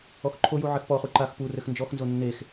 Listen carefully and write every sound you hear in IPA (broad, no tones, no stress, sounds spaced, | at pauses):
ɔ x ǃʰ o j u ʕ ɘ x p ɔ χ u ǃ a x p u r ɘ x n d͡ʒ ɔ x n z o nː e x